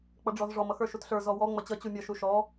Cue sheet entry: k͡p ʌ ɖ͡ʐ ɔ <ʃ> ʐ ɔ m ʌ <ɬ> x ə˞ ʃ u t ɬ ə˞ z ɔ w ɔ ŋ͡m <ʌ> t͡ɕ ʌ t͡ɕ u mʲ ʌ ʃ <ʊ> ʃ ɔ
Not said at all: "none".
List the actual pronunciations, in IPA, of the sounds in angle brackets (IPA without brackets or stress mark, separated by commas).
z, none, ʌ, u